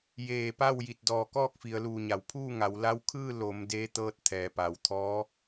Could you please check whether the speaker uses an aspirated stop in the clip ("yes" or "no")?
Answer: yes